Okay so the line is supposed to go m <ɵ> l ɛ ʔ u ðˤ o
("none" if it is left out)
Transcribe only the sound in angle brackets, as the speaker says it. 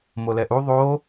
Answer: o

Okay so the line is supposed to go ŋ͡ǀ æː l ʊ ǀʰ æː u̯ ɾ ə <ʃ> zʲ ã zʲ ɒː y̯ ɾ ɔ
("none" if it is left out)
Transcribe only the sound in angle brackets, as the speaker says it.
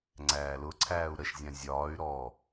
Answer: ʃ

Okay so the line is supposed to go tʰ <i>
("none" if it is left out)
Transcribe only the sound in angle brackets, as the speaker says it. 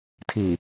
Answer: i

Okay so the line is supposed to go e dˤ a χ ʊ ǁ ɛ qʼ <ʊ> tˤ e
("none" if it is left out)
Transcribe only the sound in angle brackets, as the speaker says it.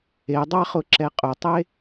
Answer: ʊ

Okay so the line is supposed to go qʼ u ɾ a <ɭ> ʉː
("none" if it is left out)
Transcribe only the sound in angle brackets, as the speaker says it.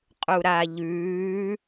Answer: ʎ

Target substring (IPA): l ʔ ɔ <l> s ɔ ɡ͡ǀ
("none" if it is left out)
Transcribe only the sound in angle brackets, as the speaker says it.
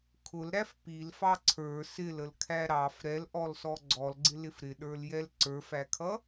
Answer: l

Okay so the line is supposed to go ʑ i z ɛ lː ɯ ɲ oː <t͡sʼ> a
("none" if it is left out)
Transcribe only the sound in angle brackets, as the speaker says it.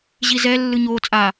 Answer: t͡sʼ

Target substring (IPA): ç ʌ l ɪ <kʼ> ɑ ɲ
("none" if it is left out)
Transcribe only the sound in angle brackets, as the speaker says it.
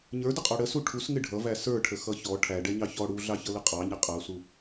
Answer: qʼ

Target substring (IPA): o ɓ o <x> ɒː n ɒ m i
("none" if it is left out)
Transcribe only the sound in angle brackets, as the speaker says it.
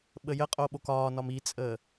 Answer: k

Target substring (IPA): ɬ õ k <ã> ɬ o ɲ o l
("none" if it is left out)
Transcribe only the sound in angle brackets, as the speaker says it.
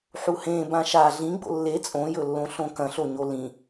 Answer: ɐ̃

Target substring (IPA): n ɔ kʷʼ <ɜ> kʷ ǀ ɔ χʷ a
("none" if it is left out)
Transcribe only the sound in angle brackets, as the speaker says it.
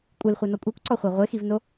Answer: ɜ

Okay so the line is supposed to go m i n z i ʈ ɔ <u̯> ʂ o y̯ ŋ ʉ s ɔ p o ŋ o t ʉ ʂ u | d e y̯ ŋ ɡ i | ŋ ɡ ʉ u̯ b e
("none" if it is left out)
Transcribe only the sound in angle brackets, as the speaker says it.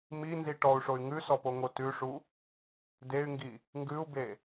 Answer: u̯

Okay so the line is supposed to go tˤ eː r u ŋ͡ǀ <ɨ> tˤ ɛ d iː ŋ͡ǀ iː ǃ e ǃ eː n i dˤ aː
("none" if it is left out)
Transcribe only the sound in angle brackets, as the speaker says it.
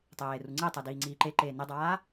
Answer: i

